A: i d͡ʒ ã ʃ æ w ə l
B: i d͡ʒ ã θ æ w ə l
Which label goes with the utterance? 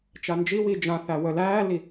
B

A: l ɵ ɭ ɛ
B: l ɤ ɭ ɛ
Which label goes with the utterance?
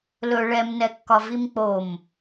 A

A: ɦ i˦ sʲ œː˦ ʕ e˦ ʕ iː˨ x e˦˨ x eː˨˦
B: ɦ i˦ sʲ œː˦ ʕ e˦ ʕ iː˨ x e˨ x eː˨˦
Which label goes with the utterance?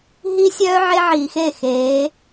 A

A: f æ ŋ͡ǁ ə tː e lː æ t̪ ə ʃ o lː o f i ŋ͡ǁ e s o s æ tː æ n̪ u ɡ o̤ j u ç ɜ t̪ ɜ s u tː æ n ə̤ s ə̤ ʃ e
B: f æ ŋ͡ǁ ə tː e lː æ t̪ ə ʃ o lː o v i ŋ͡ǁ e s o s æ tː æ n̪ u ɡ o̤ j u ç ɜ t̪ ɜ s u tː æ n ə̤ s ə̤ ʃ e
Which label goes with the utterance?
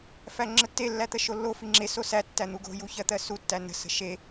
A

